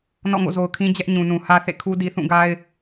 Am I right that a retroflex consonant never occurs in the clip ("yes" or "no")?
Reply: yes